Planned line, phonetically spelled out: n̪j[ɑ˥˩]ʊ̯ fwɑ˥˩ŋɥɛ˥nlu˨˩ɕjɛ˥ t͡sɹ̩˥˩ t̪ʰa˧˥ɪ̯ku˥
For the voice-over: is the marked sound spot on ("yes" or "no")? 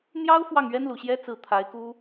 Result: no